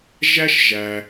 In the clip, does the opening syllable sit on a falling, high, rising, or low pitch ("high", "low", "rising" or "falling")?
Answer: high